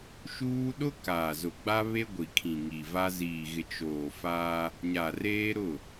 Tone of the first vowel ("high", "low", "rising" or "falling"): high